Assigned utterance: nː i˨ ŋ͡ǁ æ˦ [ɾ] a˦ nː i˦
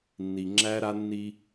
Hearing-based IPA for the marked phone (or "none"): ɾ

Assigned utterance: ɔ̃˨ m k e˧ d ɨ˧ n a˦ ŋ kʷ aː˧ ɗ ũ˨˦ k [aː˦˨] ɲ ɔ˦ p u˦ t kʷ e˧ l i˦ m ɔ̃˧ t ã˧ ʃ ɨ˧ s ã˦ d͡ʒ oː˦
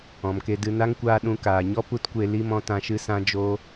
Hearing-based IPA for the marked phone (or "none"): aː˨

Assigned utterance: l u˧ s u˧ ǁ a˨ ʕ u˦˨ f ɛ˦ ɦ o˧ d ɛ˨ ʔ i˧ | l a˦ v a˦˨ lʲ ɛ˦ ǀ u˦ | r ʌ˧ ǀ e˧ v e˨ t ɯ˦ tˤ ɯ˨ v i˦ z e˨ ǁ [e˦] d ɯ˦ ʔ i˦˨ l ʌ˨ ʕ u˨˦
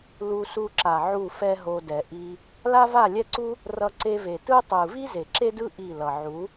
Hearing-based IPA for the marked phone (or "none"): e˦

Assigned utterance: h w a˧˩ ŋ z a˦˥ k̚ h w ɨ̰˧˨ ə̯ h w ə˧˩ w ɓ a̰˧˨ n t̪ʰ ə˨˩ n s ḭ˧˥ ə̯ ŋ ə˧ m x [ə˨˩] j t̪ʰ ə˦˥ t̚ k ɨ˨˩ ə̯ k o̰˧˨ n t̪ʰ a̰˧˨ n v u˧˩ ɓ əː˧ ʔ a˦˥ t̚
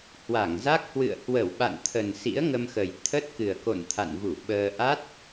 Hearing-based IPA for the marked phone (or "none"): ə˨˩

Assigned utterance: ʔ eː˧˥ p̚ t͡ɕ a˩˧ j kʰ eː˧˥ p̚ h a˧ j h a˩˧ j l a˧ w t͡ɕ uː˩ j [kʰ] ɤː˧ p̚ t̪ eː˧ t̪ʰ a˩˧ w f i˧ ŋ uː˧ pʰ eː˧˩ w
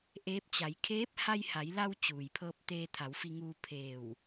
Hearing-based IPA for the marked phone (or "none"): pʰ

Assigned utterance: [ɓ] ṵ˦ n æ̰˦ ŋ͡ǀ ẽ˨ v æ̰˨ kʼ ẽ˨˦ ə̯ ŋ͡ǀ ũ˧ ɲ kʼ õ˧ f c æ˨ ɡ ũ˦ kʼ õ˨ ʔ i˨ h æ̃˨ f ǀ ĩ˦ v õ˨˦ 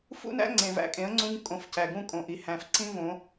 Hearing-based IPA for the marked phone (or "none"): f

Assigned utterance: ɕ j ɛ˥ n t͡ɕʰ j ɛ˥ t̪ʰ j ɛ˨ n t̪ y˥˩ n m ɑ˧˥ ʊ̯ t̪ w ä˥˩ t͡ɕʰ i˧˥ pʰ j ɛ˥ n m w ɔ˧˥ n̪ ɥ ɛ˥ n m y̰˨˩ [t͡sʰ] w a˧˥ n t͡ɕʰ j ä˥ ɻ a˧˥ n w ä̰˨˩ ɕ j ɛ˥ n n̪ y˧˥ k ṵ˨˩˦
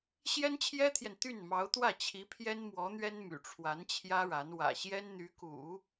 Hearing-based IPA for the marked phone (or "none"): ʈ͡ʂʰ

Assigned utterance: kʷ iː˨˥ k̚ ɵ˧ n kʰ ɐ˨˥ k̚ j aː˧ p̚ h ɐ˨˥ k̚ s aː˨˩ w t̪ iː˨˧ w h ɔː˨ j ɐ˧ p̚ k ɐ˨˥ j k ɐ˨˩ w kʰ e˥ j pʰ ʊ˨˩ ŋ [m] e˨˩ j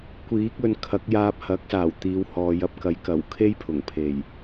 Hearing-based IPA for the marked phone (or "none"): pʰ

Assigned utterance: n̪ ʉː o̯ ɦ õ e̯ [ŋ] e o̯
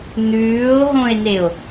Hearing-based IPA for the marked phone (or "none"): n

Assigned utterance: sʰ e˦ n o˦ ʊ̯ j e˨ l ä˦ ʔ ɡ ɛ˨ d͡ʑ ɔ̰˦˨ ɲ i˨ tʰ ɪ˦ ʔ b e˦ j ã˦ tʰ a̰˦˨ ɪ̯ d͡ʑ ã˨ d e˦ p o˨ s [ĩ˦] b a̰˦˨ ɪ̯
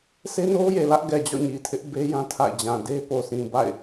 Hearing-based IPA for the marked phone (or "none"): ĩ˨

